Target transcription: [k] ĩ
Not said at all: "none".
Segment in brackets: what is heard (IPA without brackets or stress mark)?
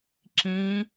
ǁ